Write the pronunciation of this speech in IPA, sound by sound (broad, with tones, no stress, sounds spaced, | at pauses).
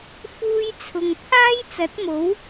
f uː˥ j t͡sʰ ʊ˧ ŋ t̪ʰ aː˥ j t͡s ɐ˨˥ t̚ m o˨˥ w